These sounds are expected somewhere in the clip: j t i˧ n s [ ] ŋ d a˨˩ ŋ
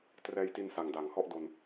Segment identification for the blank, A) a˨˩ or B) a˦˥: A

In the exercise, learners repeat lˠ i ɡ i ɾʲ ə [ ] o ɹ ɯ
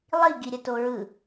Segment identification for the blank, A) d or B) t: B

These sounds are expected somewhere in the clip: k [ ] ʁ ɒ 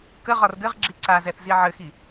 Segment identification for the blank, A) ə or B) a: A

